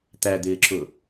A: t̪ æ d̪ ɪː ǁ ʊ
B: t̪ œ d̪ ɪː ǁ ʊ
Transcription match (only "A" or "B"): A